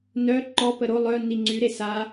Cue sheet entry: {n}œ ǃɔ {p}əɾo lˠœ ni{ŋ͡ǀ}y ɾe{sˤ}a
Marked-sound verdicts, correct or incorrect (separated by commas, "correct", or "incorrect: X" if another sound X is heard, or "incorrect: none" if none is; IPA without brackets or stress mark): correct, correct, correct, incorrect: s